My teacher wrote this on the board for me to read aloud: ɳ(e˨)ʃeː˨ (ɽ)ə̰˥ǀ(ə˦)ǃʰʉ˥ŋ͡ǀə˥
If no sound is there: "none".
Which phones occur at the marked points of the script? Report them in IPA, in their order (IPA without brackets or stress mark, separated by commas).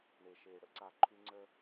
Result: e˨, ɽ, a˦